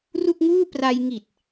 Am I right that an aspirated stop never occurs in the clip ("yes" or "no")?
yes